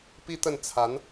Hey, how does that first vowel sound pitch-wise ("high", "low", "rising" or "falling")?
high